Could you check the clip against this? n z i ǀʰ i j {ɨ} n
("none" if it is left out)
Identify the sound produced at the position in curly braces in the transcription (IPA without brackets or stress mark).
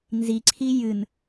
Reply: ɨ